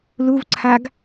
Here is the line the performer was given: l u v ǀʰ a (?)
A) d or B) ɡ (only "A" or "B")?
B